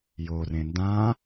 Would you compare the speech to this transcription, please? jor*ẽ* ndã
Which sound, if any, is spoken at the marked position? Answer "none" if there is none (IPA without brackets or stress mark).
ẽ